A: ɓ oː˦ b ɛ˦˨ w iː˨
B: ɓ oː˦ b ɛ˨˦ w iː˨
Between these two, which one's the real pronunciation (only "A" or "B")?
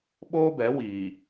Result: B